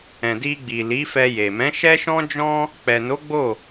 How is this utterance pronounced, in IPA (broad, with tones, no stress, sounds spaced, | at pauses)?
ɛ̃˨ d i˧ ɡ͡b i˨ l i˨˦ f ɛ˧ j e˨ m ɛ̃˨˦ ʃ ɛ˦ ʃ ɔ̃˦ d͡ʒ ɔ̃˦ | k͡p ɛ˨ n o˨˦ ɡ͡b o˦˨